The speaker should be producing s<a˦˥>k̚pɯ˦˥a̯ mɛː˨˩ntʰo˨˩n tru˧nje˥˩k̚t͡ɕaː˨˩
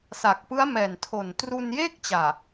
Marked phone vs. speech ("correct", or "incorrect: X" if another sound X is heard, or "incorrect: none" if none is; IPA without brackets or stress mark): incorrect: a˨˩